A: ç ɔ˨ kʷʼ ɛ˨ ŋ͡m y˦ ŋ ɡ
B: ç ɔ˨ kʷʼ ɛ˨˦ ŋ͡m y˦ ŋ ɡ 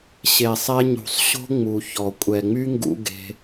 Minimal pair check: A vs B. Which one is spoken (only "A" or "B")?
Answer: A